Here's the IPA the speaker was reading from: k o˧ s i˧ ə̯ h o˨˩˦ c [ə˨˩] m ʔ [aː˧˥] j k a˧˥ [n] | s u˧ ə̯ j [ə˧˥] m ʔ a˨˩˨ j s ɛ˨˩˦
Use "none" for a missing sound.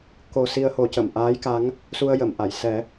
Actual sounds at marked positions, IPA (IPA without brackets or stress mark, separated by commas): ə˨˩˨, aː˧˥, ŋ, ə˨˩˨